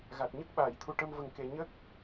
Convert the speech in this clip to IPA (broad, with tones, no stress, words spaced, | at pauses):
ɣa˨˩t̚ɲə˦˥k̚ ɓaː˨˩˨jt̪ʰu˨˩ʈə˧m və˨˩ŋke˨˩ ɲə˦˥k̚